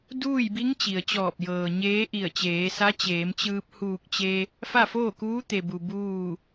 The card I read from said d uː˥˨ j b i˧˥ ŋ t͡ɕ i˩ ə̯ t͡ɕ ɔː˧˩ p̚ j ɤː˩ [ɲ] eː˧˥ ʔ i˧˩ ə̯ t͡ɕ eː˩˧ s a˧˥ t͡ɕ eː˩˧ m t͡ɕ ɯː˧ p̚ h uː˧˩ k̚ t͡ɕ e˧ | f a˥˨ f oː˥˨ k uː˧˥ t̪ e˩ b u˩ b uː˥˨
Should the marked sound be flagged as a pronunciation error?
no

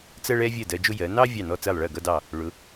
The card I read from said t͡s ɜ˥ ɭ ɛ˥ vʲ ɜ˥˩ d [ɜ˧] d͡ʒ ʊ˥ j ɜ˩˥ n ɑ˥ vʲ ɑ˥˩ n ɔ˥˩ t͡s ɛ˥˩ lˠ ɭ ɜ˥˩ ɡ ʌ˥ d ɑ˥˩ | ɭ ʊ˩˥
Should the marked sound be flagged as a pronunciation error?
no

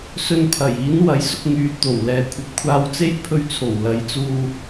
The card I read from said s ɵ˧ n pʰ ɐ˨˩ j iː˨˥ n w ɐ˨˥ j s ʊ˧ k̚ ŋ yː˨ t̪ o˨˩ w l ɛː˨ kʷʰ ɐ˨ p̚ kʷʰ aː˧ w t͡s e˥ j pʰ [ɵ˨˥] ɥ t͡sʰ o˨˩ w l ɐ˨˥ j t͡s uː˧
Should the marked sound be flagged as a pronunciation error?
yes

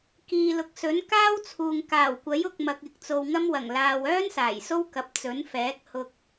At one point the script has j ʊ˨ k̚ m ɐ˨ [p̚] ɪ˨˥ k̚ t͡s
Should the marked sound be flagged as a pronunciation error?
yes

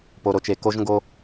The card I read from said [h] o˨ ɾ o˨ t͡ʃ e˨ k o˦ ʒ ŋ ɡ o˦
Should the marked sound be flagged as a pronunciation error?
yes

